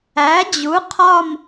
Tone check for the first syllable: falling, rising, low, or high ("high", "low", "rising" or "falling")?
rising